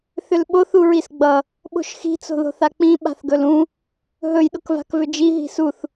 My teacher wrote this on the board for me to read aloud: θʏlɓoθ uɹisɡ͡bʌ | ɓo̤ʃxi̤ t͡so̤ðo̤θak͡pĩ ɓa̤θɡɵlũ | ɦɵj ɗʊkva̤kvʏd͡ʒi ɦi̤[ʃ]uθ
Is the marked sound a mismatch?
yes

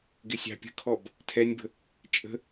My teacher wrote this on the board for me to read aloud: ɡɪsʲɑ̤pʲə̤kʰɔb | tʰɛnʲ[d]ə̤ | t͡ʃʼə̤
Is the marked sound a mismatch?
yes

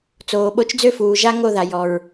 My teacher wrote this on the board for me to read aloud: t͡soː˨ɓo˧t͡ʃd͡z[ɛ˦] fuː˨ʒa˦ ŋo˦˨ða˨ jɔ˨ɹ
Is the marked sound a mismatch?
yes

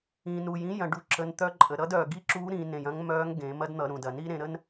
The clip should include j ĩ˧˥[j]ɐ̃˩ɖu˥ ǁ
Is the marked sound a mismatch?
no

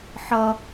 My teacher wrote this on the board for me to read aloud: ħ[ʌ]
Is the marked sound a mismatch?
no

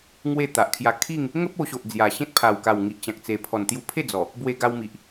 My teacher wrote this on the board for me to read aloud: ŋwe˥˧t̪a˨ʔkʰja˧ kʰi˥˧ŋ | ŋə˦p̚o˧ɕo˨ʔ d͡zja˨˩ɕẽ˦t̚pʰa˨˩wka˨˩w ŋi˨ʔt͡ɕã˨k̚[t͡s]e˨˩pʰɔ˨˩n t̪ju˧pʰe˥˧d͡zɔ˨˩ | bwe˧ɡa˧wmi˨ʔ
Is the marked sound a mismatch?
no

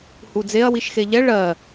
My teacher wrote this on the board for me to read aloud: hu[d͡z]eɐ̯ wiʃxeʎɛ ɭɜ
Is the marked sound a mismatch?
no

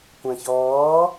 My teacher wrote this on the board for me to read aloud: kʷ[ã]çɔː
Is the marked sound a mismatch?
no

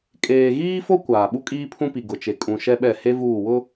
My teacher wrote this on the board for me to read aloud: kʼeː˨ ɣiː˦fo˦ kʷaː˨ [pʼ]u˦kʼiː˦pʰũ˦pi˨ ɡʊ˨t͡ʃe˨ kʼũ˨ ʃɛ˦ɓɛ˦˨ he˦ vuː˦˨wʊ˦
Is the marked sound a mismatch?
yes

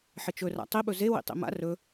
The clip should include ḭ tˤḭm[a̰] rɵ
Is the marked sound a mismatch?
no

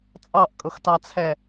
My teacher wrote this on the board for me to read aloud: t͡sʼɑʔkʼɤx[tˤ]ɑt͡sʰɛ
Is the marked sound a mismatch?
yes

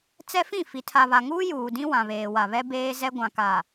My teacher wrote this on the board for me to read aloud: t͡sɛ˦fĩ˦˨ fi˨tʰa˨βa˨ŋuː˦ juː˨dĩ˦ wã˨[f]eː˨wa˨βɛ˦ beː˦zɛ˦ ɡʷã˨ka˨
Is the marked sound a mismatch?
yes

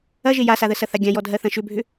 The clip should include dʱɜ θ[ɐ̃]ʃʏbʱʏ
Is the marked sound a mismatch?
no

